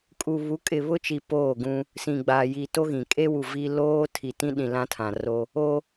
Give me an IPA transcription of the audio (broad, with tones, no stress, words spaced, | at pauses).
kʼu˨ βu˨˦kʼɪ˨βʊ˦t͡ʃi˨ poː˦˨ɡũ˦ | sĩ˨ɡ͡baː˨ji˨ to˦ɣĩ˨ kʼe˦wu˨ vi˦ loː˦ tʰi˨tĩ˦ɗĩ˨ lã˦tʰã˨ ro˦ | o˦